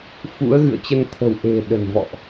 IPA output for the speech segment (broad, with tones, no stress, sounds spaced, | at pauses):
f ṵ˧˥ ə̯ ɣ ɨ̰˧˨ ə̯ t͡ɕ ə˧ n t̪ʰ ə̤˨˩ w ʔ e̤˨˩ ɗ ə̤˨˩ n v ɔ̰˧˨ ʔ